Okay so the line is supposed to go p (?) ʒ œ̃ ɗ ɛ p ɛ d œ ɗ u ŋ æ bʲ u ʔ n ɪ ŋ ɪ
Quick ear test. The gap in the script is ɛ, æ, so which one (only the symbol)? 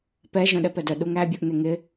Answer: ɛ